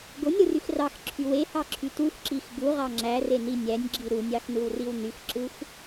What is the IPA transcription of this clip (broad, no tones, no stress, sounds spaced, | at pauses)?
ɡ o nʲ ɾ ɯ r y x r ɑ x ǁʰ y w e h ɑ ǁʰ y t u x ǁ i x ɡ u ʁ ɑ ŋ͡ǁ æ r e n i nʲ æ nʲ ɡ͡ǁ i ɾ u nʲ ɑ x n ɯ w r i w n y x ǁ ɯ x